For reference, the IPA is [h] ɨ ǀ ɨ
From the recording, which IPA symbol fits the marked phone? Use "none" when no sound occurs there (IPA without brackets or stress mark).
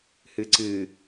h